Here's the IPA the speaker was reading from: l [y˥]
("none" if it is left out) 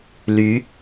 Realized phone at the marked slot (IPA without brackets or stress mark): y˧˥